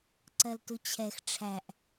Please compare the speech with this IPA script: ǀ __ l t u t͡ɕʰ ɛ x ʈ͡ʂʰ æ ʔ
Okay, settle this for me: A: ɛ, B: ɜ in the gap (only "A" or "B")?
B